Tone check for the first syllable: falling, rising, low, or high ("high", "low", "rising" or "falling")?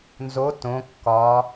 rising